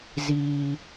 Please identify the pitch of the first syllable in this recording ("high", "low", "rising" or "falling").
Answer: low